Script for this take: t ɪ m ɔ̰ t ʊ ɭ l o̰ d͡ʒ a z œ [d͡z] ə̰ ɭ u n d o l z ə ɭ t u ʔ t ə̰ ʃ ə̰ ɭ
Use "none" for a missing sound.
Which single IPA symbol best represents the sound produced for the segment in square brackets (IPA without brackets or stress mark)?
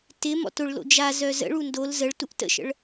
z